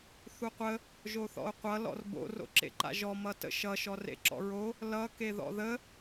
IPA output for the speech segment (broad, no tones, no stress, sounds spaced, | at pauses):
θ u qʷ ə | ʒ o θ ɔ̰ o̯ qʷ ʌ l ɔ̰ r b o̰ r o̰ ǁ ḛ ǃ a̰ ʒ ɔ m ʌ t ə̰ ʃ ʌ ʃ ɔ r ḛ ǁ ɔ̰ ɹ o | l ʌ k e ð ɔ̰ ð ə